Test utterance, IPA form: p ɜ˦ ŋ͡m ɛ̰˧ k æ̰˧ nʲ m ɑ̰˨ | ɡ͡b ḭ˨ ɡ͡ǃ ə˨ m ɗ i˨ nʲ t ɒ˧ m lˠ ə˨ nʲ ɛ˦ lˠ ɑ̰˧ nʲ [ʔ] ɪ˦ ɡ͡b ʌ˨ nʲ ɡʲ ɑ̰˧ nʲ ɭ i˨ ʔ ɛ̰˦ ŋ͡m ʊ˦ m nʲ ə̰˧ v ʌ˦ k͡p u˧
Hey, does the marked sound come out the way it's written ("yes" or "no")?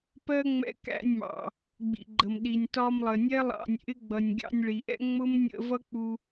yes